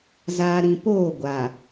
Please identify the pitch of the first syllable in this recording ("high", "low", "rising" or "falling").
low